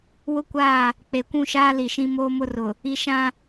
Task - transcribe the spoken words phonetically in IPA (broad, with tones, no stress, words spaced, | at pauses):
wʊ˦kʷaː˦˨ | k͡pe˨kʷũ˦˨ʃaː˦ li˨ʃĩ˦ moː˦mʊ˦rʊ˨ | i˦ ʃã˦